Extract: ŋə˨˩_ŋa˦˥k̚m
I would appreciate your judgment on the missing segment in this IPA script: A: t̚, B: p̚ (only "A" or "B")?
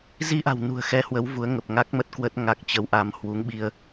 B